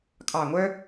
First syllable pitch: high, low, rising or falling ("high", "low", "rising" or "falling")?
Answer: low